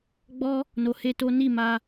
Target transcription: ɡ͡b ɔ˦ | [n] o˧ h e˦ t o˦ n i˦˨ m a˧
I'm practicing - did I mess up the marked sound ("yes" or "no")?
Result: no